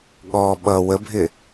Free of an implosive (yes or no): no